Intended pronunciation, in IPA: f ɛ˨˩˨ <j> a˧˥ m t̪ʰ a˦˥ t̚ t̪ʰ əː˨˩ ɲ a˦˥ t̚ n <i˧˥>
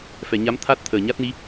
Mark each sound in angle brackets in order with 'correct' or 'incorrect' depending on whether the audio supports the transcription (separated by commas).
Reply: incorrect, correct